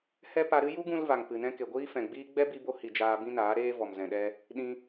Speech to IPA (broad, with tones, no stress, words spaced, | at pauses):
hɛ˦pa˧ɾɨ˦ ju˦ɡũ˧l va˨ŋpɨ˨nɛ̃˧ ke˨ɡʷiː˦fɛ̃˨ɡ͡biː˦ ɡ͡bɛ˦bi˧bo˧hi˨ d͡ʒaː˧bĩ˦naː˨˦ ɾeː˦ vɔ˨mzɛ̃˨ɗɛ˧ | ɗĩ˧